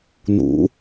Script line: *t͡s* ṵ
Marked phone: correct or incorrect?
incorrect